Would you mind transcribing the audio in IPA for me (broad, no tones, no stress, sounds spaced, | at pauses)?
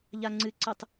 ʎ a ŋ͡ǀ ɨ ǀ ɨ tˤ